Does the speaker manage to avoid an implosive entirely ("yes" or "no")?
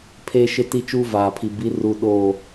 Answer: no